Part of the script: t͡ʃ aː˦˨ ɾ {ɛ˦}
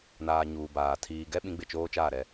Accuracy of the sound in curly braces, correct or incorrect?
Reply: correct